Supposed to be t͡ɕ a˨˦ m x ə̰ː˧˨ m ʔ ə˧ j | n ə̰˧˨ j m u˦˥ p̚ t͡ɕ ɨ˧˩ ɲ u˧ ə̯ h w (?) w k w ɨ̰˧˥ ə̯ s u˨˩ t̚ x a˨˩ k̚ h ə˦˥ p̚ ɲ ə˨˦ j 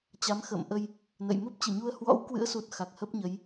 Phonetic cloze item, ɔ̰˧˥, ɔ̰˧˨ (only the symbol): ɔ̰˧˥